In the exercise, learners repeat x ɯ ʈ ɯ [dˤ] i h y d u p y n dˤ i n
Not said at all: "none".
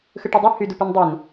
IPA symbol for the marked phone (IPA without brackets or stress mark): dˤ